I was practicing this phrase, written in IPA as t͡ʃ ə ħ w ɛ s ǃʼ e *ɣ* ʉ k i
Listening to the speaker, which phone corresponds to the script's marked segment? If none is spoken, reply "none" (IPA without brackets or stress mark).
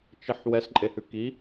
h